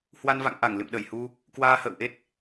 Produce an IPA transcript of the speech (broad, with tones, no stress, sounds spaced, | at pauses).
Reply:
h w a˧ n v a̰˧˨ ŋ ʔ a˧˩ ŋ l ɨ̰˧˨ m ɗ ə˧˩ j h u˧ | k w aː˧ h ə̰ː˧˨ w ʔ e˦˥ t̚